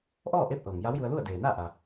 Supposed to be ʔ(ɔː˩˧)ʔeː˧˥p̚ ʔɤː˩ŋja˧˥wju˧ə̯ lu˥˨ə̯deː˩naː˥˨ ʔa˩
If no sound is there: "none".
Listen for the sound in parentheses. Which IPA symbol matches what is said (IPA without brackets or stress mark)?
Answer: ɔː˥˨